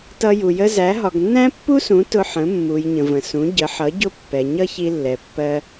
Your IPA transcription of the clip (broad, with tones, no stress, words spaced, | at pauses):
tʌ˧ju˩ jə˧ zæ˩˥ ɦɒ˩ɡnːæ̃˥pːu˥sũ˩˥ tʊ˧ħə̃˩˥ mːu˩j ɲə̃˩və̃˩sũ˩˥ ɟə˩˥ħʌ˩˥ ɟʊ˥˩pːɛ˩ ɲʌ˥ çi˧lːɛ˩pːɜ˧